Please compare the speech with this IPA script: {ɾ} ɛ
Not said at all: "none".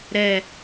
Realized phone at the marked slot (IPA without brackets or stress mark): ɾ